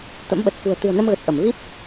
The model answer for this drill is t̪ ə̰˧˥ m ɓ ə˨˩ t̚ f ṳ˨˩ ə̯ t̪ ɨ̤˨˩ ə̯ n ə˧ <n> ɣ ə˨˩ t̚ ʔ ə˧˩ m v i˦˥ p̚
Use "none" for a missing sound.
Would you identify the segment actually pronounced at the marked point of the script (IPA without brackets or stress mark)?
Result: m